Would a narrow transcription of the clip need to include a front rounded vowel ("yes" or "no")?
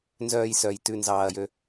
yes